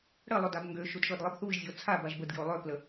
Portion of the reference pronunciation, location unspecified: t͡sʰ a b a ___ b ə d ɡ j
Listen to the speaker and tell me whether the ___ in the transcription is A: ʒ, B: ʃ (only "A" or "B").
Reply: A